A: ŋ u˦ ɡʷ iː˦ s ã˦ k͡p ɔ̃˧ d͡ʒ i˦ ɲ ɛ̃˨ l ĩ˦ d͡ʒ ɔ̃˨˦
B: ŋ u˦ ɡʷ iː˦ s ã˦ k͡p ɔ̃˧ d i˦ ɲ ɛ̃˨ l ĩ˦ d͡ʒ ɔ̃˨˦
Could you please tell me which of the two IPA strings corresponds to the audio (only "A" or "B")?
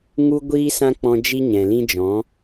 A